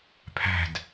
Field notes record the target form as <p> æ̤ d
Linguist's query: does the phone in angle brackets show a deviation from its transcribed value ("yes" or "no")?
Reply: yes